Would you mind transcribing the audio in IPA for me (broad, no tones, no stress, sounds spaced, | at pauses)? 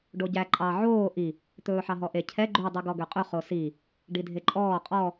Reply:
ɖ o ɟ æ ǃʼ ɑ ʕ oː ʔ i | t̪ ɵː ħ ɑ ɦ ɔ ʔ e cʰ ɛ ɡ͡ǃ ʉ dˤ ʉ ɡ ɔ ɡ ø qʼ ɵ χ o s i | ɖ i dʱ e ǃʼ ɔː qʼ ɔ